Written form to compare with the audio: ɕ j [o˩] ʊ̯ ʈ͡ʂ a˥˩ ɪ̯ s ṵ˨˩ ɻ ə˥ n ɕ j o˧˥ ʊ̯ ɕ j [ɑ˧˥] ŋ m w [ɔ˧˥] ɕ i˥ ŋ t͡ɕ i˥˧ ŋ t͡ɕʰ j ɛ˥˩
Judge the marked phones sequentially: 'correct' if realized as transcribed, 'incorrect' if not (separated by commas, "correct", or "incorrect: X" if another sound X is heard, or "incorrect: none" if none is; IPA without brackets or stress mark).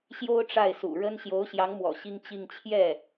incorrect: o˥, correct, incorrect: ɔ̰˨˩